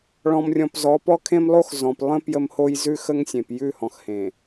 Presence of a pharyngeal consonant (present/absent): absent